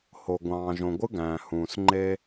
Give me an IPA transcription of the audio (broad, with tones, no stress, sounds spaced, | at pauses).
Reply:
h o˨ ɡʷ ɑ̃ː˨ ʒ õ˨ ɡʷ ɯ˦ ɡ æ̃ː˨ h ũː˨ s ŋ͡ǃ e˦